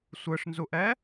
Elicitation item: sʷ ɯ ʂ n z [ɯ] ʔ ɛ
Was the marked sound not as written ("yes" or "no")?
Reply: yes